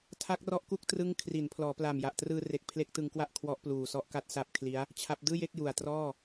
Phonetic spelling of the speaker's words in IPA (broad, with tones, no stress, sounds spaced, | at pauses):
tʰ a˦˥ k̚ r ɔ˦˥ ʔ k u˦˥ k̚ t r ɯ˦˥ ŋ kʰ r i˩˦ n pʰ l ɔː˩˦ p l a˨˩ m j a˨˩ ʔ t r ɯː˧ r e˨˩ k̚ pʰ l e˦˥ k̚ t ɯ˧ ŋ k w a˥˩ ʔ kʰ w ɔ˦˥ ʔ p l uː˨˩ s ɔ˦˥ ʔ k a˦˥ t̚ s a˦˥ p̚ kʰ l i˦˥ a̯ | t͡ɕʰ a˦˥ p̚ d ɯː˥˩ j e˥˩ k̚ j u˨˩ a̯ t r ɔː˥˩